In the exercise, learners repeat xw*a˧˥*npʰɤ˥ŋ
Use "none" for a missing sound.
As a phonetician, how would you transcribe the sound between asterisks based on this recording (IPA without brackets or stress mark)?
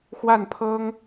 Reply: a˥˩